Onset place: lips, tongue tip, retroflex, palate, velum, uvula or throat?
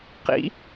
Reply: uvula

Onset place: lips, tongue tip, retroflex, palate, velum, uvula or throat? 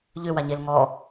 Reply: palate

